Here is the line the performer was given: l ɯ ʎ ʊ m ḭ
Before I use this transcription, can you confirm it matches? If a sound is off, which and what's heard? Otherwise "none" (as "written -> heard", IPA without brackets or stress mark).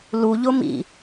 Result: ɯ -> u